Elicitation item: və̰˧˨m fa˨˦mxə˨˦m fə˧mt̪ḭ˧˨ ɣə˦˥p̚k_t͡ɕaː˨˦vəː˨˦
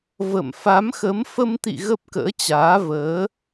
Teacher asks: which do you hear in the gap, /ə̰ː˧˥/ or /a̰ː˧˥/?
ə̰ː˧˥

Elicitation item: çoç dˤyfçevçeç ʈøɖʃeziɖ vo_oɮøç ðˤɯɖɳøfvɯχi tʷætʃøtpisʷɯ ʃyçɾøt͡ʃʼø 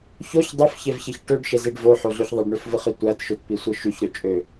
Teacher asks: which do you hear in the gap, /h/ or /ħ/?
ħ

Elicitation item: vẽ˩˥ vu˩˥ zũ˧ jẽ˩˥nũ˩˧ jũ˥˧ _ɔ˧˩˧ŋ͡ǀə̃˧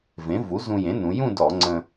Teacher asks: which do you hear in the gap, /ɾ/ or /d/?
d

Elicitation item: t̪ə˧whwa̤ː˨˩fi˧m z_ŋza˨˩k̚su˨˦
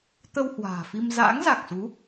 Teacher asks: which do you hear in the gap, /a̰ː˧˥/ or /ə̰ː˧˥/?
a̰ː˧˥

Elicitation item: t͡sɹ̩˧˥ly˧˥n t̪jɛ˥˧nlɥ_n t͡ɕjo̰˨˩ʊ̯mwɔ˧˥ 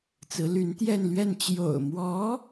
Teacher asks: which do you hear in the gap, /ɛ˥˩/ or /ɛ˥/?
ɛ˥˩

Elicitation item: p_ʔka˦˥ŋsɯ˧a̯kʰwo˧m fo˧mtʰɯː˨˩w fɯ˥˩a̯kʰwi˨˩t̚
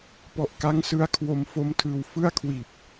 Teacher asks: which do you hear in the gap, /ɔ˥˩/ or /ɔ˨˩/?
ɔ˨˩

